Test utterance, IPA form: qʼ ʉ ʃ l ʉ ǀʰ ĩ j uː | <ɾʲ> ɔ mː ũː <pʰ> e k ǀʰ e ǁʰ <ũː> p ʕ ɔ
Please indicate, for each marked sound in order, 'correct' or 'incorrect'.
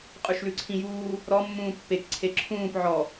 incorrect, incorrect, correct

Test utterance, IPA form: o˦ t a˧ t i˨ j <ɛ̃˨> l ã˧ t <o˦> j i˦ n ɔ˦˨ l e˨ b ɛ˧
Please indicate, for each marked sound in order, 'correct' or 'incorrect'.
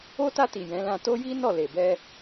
incorrect, correct

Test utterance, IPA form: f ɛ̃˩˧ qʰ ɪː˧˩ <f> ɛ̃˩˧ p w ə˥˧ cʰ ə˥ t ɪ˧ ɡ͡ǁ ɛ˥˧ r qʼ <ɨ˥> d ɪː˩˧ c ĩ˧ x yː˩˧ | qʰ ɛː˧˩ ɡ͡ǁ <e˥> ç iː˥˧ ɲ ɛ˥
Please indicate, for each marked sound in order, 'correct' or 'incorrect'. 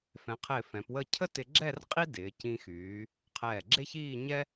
correct, incorrect, correct

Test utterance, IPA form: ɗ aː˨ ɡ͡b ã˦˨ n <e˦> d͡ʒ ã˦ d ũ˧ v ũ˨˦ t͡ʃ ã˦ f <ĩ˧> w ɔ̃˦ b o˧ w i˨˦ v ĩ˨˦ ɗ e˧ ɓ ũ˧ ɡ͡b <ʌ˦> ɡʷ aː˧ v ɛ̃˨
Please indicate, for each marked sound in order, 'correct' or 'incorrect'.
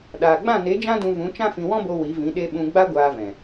incorrect, correct, incorrect

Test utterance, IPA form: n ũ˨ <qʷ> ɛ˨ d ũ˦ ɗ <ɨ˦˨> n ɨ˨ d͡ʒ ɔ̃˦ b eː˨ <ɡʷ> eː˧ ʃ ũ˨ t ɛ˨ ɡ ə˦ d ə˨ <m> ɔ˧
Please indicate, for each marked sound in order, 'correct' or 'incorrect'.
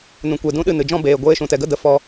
incorrect, correct, correct, incorrect

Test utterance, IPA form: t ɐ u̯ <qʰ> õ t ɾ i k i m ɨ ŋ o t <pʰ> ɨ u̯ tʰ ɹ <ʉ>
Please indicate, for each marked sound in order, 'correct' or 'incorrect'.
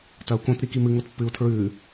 incorrect, incorrect, correct

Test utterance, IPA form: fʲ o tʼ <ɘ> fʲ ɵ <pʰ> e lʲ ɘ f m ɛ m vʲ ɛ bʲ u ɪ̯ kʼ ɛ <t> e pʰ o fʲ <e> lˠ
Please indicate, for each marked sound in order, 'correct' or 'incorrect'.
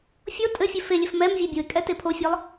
correct, incorrect, correct, correct

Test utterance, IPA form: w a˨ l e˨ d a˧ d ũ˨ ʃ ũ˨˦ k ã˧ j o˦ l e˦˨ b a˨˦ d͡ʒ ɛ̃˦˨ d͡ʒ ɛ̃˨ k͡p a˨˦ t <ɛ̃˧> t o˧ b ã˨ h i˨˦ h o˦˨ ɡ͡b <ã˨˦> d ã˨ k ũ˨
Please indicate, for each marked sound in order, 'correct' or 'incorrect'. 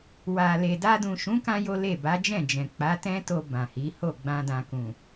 incorrect, incorrect

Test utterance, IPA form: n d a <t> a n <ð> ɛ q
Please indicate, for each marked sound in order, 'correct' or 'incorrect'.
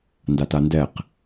correct, incorrect

